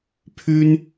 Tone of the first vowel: high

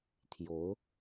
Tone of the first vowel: rising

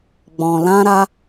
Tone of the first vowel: low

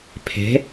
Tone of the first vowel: rising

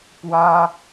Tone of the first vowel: high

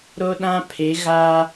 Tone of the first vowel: high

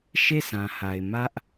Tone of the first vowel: falling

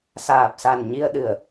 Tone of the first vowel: low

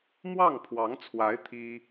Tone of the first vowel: falling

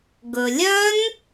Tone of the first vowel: low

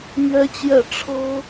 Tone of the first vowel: high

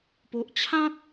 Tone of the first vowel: low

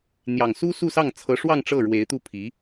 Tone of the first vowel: low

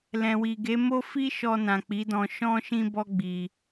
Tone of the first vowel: low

